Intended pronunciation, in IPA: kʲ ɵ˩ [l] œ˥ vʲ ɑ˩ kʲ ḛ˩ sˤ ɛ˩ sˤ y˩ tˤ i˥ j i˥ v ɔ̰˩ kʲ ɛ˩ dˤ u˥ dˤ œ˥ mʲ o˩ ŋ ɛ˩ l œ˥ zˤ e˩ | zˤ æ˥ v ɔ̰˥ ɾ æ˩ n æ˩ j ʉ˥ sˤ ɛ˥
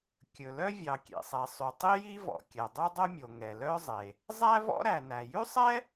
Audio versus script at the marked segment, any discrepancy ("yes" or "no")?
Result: no